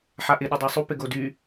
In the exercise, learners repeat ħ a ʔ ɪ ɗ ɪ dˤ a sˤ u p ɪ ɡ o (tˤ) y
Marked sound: incorrect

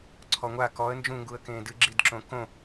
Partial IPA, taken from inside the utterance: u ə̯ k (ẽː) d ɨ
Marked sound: correct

